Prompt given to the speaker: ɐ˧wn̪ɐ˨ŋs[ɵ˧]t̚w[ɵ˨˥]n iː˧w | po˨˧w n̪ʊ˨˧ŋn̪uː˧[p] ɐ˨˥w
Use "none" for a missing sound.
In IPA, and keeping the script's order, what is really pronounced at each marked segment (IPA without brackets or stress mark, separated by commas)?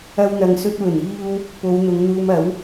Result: ɵ˧, ɵ˨˩, m